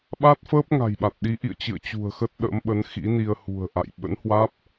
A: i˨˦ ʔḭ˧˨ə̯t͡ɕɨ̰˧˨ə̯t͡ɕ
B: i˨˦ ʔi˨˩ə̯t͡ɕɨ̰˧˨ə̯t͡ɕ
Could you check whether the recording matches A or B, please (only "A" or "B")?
A